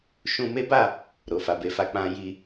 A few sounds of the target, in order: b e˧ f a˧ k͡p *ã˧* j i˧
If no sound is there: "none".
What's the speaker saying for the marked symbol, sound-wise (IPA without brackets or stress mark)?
ã˧